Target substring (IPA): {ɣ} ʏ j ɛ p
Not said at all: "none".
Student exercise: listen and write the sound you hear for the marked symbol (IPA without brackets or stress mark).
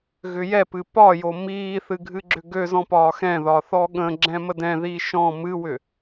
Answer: ɣ